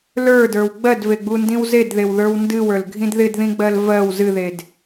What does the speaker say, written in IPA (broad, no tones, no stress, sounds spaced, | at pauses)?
l ə˞ d ə˞ w ɡ͡b ɜ d v e ɡ͡b u n d ĩ w z e d ð e w ð ə˞ w n d ɨ w ə˞ l ɡʱ ĩ d ð ɪ d ð ĩ ɡ͡b ɜ l v ɜ w z ɨ ð e d